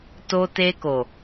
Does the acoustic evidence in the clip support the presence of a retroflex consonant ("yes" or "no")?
no